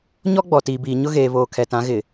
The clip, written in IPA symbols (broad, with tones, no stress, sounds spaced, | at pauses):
ɲ ɔ˦ ɡ͡b ɔ˨ t iː˨ b iː˨ ɲ ʊ˦ ɣ eː˨ β oː˨ kʰ ɛ˨ t ã˨˦ ɣ ɪ˨